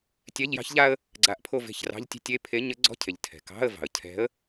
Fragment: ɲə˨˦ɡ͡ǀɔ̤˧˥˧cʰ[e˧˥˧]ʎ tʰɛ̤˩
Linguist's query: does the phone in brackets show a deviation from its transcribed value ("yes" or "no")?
yes